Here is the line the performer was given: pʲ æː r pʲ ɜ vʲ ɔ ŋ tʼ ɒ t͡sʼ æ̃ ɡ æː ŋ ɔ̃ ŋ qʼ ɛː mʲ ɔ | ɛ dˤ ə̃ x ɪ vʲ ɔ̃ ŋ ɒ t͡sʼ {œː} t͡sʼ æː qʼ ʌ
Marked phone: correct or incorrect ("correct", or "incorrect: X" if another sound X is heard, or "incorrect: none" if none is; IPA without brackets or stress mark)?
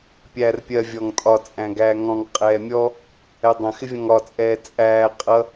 incorrect: ɛː